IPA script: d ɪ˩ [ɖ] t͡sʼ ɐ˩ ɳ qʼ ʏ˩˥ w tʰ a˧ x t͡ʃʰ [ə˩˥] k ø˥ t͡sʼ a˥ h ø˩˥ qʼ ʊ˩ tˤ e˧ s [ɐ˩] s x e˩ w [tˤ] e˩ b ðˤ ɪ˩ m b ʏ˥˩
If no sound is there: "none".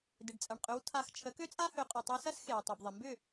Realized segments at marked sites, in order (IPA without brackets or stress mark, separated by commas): ɖ, ə˩˥, ɐ˥, tˤ